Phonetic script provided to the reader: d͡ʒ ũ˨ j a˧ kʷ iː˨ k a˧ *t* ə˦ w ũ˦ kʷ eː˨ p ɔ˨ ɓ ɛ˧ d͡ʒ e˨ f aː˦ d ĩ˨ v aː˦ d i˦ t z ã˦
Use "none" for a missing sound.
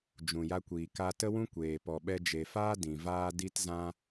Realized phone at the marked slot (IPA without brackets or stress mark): t